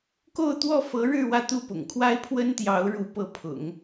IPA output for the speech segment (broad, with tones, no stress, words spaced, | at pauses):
ko˥˧ʊ̯t̪wɔ˥˩fɤ˧˥ɻɻ̩˥˧ wä˥˧t̪u˥˩ pʊ̰˨˩ŋkʰwa˥ɪ̯pʰwə˥nt̪jɑ˧˥ʊ̯ ɻu˧˥pɤ˧˥pʰʊ̰˨˩˦ŋ